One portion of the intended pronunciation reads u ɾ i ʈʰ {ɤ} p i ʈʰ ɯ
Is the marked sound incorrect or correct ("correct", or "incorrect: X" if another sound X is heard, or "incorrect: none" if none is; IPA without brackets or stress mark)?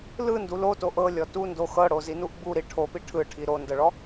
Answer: incorrect: o